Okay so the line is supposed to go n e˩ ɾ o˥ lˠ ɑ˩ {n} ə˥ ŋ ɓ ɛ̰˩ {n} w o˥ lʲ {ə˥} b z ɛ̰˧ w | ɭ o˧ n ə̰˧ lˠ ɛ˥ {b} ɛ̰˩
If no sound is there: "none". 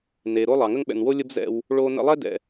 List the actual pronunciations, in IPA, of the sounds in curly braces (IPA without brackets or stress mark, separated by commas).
ŋ, n, ə˥, d